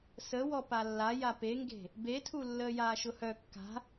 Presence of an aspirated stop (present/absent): present